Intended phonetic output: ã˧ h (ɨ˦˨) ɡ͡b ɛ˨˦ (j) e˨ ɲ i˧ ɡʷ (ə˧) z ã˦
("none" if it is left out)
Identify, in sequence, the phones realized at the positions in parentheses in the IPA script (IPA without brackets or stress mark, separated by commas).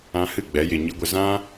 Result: ɨ˦˨, j, ə˧